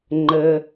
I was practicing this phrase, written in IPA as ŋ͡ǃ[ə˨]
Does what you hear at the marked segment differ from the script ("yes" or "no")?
no